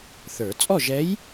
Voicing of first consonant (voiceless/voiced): voiceless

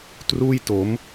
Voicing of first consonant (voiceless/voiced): voiceless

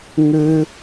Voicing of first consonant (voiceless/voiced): voiced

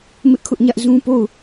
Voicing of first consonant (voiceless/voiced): voiced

